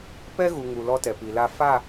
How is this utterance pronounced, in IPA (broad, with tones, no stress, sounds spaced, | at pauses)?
p ɛ˦ ɣ u˨ ŋ u˨ l ɔ˦ t ɛ˨ p i˨ l a˦ f a˦˨